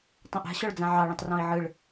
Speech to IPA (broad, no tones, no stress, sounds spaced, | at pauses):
tˤ õ ʔ a̤ ɕ ɔ ɭ d͡z ã ʕ ɑ ɭ ɛ̃ tˤ r ɔ̃ i̯ ʕ ɯ ɭ